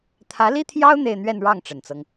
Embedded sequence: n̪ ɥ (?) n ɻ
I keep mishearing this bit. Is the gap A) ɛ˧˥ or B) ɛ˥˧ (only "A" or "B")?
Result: B